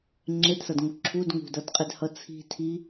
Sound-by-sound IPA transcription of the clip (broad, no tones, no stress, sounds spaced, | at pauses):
ŋ͡ǁ e d s ʌ d ŋ u ǁʰ u d ŋ ṳ d ʌ d qʼ e d h ʌ t͡sʰ i̤ tʰ i